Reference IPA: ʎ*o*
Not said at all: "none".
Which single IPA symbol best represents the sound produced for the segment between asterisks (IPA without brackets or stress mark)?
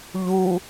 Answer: u